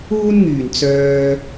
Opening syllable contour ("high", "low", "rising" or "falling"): high